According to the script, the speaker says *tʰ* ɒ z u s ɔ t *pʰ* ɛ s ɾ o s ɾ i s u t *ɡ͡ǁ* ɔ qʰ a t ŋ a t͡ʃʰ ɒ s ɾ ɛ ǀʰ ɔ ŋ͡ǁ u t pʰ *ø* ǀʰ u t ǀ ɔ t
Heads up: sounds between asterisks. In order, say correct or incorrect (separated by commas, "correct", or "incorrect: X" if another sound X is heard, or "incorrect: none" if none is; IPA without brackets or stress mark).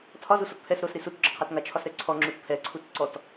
correct, correct, correct, incorrect: ɛ